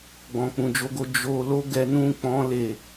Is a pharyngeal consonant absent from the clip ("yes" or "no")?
yes